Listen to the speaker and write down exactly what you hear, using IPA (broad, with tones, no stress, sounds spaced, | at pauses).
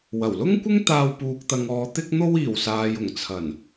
w ɐ˨˩ w l ʊ˥ ŋ kʷ ɪ˥ ŋ t̪ aː˧ w p uː˨ k̚ t̪ ɐ˨ ŋ ɔː˨ t̪ ɪ˧ k̚ n̪ o˧ w iː˨˩ w s aː˨ j ʊ˨˩ ŋ t͡sʰ ɐ˨˩ n